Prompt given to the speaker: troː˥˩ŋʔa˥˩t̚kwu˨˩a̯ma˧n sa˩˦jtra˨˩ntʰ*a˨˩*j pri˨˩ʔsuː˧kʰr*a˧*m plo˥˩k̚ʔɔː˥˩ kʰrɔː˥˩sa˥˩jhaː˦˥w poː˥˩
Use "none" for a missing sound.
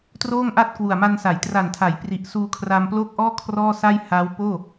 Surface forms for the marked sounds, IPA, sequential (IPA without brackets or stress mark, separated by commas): a˩˦, a˧